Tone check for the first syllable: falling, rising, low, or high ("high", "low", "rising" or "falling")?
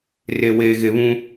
low